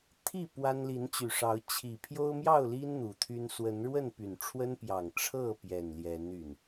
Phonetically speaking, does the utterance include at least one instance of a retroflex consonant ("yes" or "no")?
yes